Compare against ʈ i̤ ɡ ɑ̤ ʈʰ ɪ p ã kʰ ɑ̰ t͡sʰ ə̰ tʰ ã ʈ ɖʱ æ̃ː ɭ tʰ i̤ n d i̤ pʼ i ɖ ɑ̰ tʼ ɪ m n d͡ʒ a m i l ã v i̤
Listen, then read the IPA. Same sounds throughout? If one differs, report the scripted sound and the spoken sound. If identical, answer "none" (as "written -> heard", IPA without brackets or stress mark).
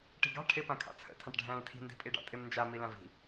none